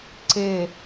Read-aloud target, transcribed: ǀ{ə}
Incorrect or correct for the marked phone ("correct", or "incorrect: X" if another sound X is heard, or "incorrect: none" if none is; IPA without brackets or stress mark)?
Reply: incorrect: ɪ